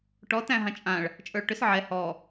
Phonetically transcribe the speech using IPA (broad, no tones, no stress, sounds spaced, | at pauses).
ʈ ɔ t æ̃ ɦ ã t͡ʃʼ ã ɭ | t͡ʃʼ ə˞ ɭ ʈ ʏ s ʕ ɛ h ɔ